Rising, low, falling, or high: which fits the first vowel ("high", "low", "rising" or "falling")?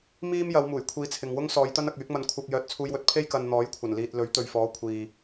high